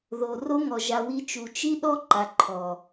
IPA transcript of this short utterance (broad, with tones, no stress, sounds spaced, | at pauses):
ð o˨ r o˦ ŋ ɔ˨ ʒ a˨ w i˧ t͡ʃ u˨ t͡ʃ i˦ ɗ ɔ˦ ǃ a˨ ǃʰ ɔ˨